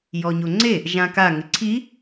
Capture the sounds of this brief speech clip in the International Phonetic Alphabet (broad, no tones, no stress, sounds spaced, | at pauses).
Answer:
j ɔ ɲ o ŋ͡ǀ e | ʒ ã k a ŋ ɪ ǀʰ i